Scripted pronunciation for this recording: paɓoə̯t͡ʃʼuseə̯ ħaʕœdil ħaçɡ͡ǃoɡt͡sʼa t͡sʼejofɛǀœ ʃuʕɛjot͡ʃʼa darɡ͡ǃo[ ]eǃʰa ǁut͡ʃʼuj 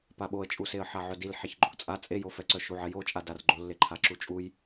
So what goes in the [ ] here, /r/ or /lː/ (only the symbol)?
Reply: lː